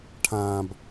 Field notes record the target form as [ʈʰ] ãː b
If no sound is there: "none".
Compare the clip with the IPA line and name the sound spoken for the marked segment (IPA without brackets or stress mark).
ʈʰ